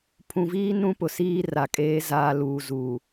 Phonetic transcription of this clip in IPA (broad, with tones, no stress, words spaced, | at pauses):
pʰũ˨viː˦ nũ˦pʊ˨ siː˦ra˨kʼeː˨˦ zaː˨luː˨zuː˨